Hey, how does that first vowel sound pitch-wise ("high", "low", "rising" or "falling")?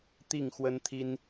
falling